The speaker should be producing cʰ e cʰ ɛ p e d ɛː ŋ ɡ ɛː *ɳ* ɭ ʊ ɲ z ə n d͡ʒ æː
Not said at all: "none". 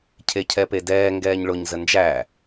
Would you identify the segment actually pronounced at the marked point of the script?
ɲ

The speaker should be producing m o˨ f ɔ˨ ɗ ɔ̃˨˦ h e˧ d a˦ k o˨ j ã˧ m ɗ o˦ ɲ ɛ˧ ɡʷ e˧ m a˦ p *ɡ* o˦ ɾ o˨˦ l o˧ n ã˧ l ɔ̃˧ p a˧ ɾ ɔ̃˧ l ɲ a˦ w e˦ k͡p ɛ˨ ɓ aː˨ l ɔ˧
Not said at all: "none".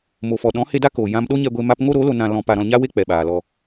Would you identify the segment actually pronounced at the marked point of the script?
ŋ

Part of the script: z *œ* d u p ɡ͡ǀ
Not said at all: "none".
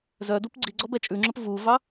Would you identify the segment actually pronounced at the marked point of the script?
œ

